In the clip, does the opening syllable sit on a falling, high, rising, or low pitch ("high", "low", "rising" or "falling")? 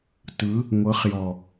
rising